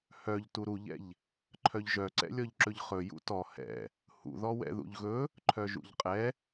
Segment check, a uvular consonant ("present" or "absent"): present